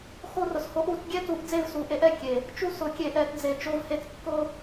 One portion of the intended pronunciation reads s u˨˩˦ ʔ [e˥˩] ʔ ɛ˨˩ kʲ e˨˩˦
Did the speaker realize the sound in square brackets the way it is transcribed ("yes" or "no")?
no